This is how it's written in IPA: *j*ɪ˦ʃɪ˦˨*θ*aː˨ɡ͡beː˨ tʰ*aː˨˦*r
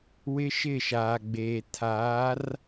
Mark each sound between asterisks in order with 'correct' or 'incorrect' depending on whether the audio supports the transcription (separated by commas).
incorrect, incorrect, correct